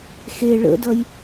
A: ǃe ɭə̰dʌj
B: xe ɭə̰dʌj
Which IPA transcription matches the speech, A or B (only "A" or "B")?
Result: B